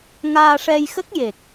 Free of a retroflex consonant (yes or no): no